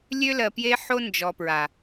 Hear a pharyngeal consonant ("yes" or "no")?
yes